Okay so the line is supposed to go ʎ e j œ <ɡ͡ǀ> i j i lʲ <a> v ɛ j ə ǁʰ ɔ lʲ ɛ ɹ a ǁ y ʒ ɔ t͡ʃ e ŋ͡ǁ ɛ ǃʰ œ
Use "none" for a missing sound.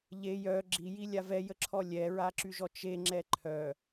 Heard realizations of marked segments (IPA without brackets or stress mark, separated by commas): ɡ͡ǁ, a